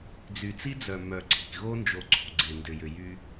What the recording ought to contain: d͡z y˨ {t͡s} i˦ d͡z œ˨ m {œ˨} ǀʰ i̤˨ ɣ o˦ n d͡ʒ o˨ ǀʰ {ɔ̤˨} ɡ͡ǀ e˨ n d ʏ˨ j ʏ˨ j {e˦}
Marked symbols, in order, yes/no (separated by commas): yes, yes, no, no